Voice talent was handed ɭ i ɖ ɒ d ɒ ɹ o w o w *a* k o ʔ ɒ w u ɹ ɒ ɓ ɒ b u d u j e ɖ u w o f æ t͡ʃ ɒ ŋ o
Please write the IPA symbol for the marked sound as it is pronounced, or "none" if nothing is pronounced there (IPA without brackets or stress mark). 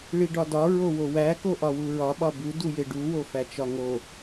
æ